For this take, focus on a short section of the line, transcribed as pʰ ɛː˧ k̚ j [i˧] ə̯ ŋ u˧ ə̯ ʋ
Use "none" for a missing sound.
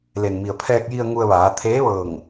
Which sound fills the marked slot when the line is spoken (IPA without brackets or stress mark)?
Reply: i˧